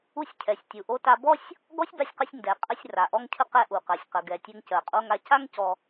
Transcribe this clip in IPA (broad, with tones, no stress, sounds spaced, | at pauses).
u˧ sʲ cʰ ɛ˩ sʲ tʲ u˩ ʔ o˧ t a˧ b ɔ˥ sʲ | ɡ ɔ˥ sʲ b a˧ sʲ q ə˧ sʲ n d ɛ˩ qʼ ə˧ sʲ r a˩ ʔ ɔ˧ ŋ cʰ ə˧ q ɛ˧ ʔ u˩ q ɜ˩ sʲ q ə˩ ɡ ɛ˩ tʲ ɛ˧ ŋ c ɜ˩ qʼ o˧ ŋ a˧ c a˥ ŋ c ɔ˧